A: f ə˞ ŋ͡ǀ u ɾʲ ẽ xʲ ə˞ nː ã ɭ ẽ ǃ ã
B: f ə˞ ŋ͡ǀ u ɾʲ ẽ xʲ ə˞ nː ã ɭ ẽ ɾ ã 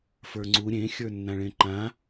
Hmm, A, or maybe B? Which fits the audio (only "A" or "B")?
A